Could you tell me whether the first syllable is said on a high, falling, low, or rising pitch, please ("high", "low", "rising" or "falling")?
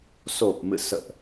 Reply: low